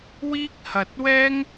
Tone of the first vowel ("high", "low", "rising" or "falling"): high